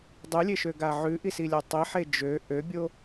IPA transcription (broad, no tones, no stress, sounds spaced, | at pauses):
dˤ ʉ lʲ e ʃ ø ɡ a ʕ ʉ ʔ i s i lʲ a tˤ i ħ e d͡ʒ ø ʔ ø bʲ o